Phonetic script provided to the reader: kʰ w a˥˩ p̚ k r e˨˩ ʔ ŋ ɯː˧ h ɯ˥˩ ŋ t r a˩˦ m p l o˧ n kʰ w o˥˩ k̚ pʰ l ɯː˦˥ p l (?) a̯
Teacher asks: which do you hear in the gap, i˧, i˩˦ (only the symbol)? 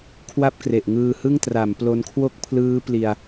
i˧